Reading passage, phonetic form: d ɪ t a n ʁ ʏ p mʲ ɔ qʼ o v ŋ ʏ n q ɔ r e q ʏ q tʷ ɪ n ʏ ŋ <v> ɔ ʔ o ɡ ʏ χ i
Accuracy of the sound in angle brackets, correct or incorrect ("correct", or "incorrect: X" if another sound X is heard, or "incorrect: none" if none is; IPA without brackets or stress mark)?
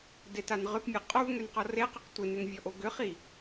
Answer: incorrect: vʲ